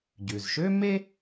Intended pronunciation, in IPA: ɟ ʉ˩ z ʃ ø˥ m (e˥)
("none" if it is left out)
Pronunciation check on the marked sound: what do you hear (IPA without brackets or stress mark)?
e˥